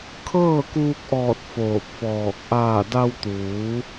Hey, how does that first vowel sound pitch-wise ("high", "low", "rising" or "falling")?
falling